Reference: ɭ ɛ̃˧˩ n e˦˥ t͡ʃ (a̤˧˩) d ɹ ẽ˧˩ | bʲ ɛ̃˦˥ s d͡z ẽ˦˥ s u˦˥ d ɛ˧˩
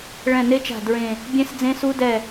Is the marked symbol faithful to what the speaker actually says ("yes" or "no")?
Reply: yes